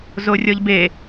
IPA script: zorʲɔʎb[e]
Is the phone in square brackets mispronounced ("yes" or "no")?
no